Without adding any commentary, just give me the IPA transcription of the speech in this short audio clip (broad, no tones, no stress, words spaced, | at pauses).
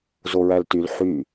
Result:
zoɹæltyl ħy